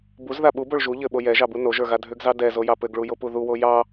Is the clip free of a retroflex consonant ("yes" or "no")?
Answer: no